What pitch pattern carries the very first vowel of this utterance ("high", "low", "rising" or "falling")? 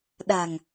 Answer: low